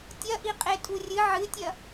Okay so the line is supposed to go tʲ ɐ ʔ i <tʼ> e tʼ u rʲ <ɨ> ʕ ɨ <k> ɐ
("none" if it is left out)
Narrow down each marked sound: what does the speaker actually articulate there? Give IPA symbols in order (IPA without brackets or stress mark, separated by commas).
qʼ, ɨ, tʲ